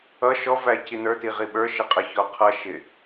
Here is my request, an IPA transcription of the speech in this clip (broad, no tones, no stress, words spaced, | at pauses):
ʌ ʃɔvæ cinə˞ti ʁiɓə˞ʃɪ qʼəçɔqʰʌ ʃɪ